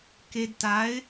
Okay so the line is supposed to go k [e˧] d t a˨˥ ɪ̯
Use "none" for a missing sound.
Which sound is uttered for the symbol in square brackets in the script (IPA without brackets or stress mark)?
e˧